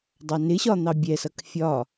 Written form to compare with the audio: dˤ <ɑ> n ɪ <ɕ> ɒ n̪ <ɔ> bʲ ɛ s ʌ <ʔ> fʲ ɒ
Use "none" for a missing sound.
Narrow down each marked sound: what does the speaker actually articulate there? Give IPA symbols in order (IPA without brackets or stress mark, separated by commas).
ɑ, ɕ, ɑ, k